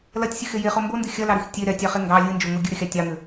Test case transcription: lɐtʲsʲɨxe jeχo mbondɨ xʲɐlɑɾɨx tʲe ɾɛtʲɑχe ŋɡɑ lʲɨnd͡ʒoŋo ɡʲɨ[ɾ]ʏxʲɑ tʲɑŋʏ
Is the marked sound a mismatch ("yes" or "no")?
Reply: no